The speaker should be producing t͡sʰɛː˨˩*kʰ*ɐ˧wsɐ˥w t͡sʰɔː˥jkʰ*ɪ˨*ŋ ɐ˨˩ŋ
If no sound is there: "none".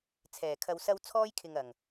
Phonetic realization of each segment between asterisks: kʰ, ɪ˨

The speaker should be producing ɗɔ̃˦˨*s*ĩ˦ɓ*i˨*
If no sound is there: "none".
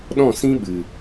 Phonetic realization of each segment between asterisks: s, ɨ˨

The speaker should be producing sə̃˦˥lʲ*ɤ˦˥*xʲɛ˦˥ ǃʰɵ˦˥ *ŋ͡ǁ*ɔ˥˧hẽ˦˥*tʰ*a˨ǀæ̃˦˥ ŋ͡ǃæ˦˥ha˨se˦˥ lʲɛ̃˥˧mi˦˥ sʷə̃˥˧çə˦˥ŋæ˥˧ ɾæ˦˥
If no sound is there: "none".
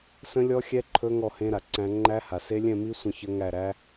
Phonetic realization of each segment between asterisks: ɔ˦˥, ŋ, ɾ

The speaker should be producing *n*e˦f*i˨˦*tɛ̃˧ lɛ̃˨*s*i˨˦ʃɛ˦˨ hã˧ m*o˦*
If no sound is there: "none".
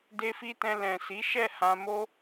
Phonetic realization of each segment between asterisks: d, i˦, s, o˦

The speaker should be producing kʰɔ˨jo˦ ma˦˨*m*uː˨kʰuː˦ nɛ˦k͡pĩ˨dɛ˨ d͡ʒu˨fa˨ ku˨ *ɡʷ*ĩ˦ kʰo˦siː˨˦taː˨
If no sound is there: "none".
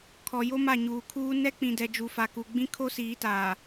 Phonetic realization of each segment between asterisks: ɲ, ɡ͡b

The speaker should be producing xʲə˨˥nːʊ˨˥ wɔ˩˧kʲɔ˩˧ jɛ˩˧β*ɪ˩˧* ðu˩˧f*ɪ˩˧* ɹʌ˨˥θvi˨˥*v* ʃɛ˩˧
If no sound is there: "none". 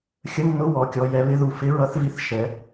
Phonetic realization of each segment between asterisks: ɪ˨˥, ɪ˨˥, θ

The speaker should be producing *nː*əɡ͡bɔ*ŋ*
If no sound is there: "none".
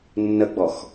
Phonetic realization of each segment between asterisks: nː, x

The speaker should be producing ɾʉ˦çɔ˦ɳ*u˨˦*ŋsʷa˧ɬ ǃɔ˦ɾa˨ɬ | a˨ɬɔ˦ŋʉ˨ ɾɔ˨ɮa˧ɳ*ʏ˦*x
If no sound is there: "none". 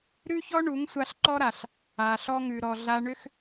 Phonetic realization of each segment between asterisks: u˨˦, ʏ˦

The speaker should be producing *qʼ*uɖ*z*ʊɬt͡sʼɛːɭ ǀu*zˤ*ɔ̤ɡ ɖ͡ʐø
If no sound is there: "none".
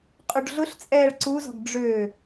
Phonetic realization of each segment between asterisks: qʼ, ɮ, z

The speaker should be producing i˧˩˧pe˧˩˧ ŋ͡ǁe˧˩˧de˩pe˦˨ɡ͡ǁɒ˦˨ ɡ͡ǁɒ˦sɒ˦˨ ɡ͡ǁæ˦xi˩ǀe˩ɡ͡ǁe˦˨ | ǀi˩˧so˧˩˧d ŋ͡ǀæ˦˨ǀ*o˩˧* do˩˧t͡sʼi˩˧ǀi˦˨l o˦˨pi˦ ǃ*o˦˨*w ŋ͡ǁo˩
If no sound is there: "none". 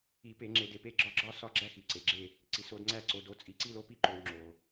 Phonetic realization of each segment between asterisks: o˩˧, o˩

